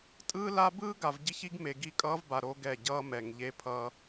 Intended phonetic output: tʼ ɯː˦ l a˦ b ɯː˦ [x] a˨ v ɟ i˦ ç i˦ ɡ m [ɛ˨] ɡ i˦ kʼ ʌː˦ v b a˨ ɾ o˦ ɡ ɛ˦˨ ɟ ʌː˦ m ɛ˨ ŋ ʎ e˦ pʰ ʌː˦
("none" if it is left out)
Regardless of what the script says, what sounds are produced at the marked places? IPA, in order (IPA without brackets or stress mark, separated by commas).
ɡ, e˨